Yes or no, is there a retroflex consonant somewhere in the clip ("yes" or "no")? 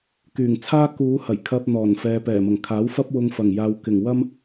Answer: no